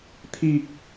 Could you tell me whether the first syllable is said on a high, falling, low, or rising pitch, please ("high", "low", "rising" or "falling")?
low